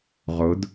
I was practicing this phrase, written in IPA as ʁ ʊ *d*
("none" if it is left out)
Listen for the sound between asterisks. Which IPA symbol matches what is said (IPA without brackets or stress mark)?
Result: d